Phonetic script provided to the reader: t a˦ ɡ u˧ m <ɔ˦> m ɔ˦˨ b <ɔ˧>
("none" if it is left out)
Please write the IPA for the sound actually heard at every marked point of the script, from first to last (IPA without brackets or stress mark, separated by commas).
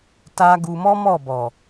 ɔ˦, ɔ˨